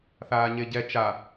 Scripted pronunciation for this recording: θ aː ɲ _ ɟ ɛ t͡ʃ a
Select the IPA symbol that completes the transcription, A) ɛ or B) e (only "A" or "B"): B